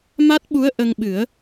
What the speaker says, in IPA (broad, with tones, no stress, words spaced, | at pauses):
ma˦˥t̚ɓu˧˥ə̯ ʔə˧ŋɓɨ˨˩˦ə̯